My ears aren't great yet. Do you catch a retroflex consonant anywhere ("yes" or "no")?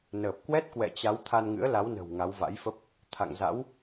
no